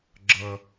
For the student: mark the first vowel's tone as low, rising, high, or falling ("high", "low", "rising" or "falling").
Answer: high